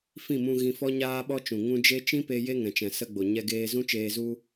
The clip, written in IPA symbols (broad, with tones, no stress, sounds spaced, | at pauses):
f ĩ˦˨ m ũ˧ ɣ ĩ˧ f ɔ˦ ɲ aː˦ ɓ ɔ˦ t͡ʃ ũ˨ ŋ ũ˦ d͡ʒ e˦ t͡ʃ ĩ˦ p e˧ j e˦ ŋ ɛ̃˨ t͡ʃ ɛ̃˨ s ə˧ ɡ͡b o˨ ɲ ɛ˧ ɡ eː˧ z ũ˦ t͡ʃ eː˧ z u˦